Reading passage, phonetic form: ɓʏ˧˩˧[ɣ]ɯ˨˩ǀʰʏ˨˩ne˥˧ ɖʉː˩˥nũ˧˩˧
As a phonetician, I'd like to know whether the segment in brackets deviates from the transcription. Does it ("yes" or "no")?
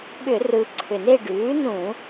yes